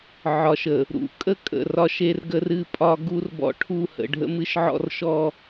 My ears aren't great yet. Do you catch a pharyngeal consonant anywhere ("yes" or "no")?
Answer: yes